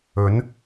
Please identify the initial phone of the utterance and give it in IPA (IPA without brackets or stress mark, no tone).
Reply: ɵ